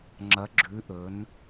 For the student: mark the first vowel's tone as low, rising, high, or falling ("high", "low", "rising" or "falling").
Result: rising